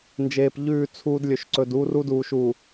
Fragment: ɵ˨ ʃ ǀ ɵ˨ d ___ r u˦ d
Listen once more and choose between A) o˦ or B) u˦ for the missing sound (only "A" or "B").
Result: B